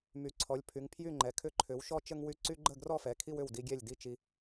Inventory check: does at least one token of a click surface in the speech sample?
yes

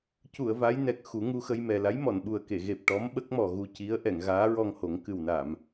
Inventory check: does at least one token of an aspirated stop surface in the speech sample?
no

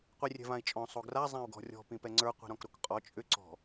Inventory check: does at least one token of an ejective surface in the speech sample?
yes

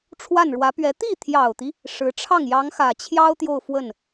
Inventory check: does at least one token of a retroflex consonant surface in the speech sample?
yes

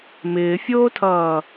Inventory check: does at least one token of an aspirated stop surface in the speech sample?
yes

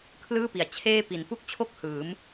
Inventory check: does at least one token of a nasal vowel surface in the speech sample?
no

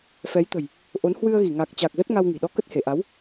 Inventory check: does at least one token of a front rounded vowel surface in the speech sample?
no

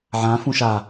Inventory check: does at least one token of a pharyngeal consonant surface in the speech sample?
yes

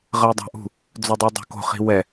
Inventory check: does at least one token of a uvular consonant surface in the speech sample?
yes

